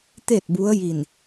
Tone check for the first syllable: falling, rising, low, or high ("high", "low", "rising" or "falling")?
falling